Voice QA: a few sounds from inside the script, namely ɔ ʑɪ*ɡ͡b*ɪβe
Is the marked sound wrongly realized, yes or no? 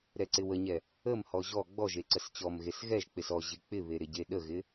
yes